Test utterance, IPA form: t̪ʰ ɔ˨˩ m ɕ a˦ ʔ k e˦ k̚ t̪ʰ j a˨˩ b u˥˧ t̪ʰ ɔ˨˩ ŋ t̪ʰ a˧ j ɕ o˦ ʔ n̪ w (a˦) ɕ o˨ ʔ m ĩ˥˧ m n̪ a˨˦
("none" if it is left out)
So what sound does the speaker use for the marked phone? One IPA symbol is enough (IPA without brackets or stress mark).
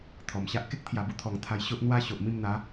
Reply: a˦